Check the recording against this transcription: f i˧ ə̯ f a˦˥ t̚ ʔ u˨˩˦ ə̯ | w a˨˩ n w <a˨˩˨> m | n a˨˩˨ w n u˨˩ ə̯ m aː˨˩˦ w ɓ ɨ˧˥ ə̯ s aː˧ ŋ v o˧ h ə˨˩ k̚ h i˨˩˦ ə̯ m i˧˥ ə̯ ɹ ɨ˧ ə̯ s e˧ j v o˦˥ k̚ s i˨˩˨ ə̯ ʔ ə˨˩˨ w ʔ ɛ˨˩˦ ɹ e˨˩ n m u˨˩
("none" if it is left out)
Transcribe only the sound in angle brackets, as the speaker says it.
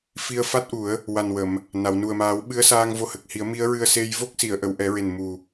ə˨˩˨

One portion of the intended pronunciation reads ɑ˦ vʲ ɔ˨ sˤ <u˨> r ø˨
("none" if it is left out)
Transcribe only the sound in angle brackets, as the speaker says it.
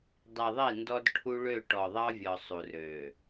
u˨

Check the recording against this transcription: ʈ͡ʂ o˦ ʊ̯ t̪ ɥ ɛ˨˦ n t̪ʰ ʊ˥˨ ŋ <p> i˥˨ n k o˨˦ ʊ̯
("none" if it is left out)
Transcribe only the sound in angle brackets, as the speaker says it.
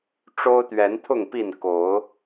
p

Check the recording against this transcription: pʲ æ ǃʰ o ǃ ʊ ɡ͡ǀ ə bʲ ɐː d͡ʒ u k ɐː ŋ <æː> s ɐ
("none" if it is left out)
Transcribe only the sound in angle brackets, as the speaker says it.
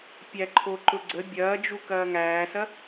æː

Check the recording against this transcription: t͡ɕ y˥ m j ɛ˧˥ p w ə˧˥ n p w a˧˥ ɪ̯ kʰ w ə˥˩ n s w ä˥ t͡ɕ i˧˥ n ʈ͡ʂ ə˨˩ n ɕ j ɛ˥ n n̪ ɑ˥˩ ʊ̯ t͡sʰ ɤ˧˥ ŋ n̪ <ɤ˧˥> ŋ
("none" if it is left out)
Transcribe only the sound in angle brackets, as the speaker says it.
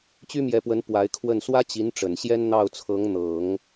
ɤ˨˩˦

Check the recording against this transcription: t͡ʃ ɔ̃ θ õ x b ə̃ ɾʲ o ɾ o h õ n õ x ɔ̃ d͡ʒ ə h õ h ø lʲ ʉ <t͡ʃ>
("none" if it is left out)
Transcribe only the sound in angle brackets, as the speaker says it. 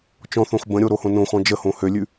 none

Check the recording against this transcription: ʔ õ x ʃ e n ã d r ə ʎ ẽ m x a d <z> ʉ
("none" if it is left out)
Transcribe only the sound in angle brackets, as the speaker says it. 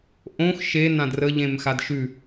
ʃ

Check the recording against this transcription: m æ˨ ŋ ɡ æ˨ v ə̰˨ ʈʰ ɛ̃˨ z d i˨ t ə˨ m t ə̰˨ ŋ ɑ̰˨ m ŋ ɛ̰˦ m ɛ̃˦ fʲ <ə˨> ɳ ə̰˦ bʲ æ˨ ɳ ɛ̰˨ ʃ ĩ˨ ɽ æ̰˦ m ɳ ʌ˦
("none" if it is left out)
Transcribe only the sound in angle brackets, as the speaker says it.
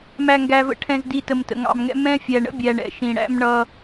æ˨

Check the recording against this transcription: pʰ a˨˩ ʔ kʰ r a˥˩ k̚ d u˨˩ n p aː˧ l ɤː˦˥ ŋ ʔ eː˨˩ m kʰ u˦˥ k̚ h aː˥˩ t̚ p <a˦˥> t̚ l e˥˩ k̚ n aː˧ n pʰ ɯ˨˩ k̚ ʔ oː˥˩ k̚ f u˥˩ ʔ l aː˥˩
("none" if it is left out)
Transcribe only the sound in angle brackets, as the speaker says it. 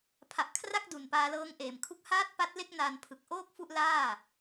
a˦˥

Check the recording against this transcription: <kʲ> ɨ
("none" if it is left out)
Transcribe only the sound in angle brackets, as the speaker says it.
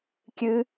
kʲ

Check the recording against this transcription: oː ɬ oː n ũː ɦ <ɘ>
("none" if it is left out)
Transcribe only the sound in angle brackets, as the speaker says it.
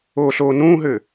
ɘ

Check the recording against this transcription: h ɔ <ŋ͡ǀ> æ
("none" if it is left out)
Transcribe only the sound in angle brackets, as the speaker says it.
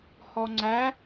ŋ͡ǀ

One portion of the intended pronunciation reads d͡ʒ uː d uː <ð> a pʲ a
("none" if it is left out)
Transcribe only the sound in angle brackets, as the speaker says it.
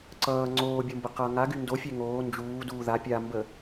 ð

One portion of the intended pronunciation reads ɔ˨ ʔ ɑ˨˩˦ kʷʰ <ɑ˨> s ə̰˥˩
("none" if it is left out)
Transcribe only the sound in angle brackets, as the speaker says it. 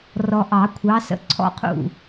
ɑ˨˦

